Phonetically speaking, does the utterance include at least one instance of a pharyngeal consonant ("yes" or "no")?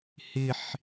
yes